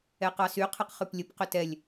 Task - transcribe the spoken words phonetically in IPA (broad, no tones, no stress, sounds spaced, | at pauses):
ɛ q ɑ s y qʰ ɛ q χ ʉ p lʲ ə p q ʏ t ɛ lʲ